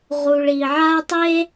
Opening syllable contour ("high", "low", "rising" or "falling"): low